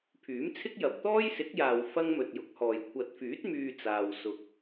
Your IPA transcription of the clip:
pʰ yː˨˥ m t͡sʰ ɪ˥ k̚ j ɐ˨ p̚ t̪ ɔː˥ j s ɪ˨˥ k̚ j aː˨ w f ɐ˥ ŋ m ɵ˨ t̚ j ʊ˨˥ k̚ h ɔː˨ j kʷʰ ɐ˨ t̚ f yː˨˥ t̚ m yː˧ t͡s aː˨ w s ʊ˨ k̚

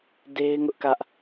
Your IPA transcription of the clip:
d e˦ ɪ̯ ŋ ʊ˦ ʔ k ä˦ ʔ

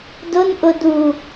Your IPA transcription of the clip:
d ʊ n ʔ ʊ d u

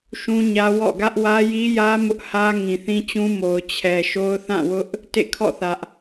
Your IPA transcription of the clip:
ʃ ũ˦ ɲ ä˦ w ɔ̰˦˨ ɡ ä˦ ʔ w ä˦ j i˦ j ä˦ m ʊ˦ ʔ h ä˦ ŋ ĩ˨ θ ĩ˦ t͡ɕ ũ˦ m o˨ ʊ̯ t͡ɕʰ ɛ˨ ʃ o˦ ʊ̯ θ ã˦˨ w ʊ˦ ʔ | t ḛ˦˨ kʰ ɔ̰˦˨ θ ä˦ ʔ

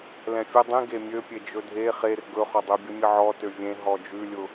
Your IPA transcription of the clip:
l ɛ̃ fʲ ə dˤ ĩ ɡ e mʲ ø pʲ e d͡ʒ ɵ dʱ e χ e r ɡ ɵ χ ɔ dˤ ø bʲ ə mʲ ə ʕ ɔ t ø vʲ ẽ ɦ ɔ d͡ʒ ʉ lʲ ʊ

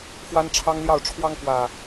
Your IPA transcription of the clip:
x w a˦ n ʈ͡ʂʰ ɑ˦ ŋ l j ɑ˥˨ ʊ̯ ʈ͡ʂʰ w ɑ˦ ŋ k w ä˨˩

